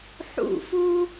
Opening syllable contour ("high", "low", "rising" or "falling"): falling